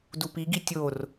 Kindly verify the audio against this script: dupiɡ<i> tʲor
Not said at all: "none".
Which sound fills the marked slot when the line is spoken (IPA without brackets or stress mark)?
i